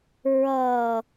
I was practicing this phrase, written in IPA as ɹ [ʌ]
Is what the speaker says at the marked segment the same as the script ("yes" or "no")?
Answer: no